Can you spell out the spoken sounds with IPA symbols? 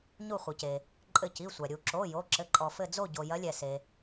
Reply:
ɲu˧˩χʷɘ˩ce˩ | ǃʼɘ˧˩ci˩˧˩sʷa˩ ɾʲu˩ǁo˩˧˩ jo˩˧˩ǁɘ˩˧˩ǃʼɔ˩fɘ˧˩ d͡zo˧˩ɟo˩ jɐ˨˦lʲɛ˩se˩

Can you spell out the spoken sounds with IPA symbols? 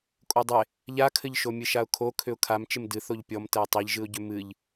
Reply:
kʼodˤɪ | ʎakʰɘʎʃo mʲɨʃaʊ̯kʰo kʰʏʊ̯kʰam t͡ʃɪmdɨ θoʎpʲɔmtɛɪ̯ tˤiʎʒɨʊ̯ɟʏ mɨʎ

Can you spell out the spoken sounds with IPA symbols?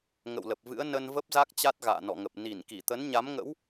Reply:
ŋə̰˧˨wlə˨˩p̚vɨ̰˧˥ə̯ nə˧nvə˦˥p̚za˦˥k̚ t͡ɕa˦˥t̚ɣa̰ː˧˨nɔ̰˧˨ŋə˨˩p̚ ni˧˩n ki˧˩t̪ə˨˦nɲa˨˦mŋə̰˧˥w

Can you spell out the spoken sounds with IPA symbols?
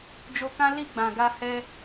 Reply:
d͡ʒo˧kã˦ li˦˨ɡ͡bã˨ɡa˧ hɛ˧

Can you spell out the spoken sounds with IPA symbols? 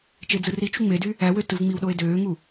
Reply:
t͡ʃed͡zɯrit͡ʃu ŋ͡medy | æwø tɯvŋ͡miwɗoe̯ døːŋu

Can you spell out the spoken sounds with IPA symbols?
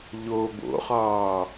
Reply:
ʎo bo̰χɒː

